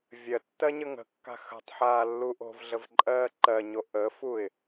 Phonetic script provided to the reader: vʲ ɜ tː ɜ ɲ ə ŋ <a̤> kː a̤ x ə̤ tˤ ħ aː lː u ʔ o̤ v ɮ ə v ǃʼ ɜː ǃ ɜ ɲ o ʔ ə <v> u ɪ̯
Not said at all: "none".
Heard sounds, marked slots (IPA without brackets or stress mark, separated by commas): ə̤, f